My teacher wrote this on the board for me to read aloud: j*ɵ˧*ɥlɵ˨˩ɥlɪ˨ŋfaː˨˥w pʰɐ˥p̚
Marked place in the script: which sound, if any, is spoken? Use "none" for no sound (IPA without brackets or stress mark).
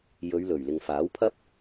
ɵ˨˧